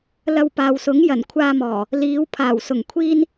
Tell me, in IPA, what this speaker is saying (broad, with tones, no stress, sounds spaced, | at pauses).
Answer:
l ɐ˧ w p aː˨ w s ʊ˨˥ ŋ j ɐ˨˩ n kʷʰ aː˧ m ɔː˨˩ | l iː˨˧ w pʰ aː˨˩ w s ʊ˨˩ ŋ kʷʰ iː˥ n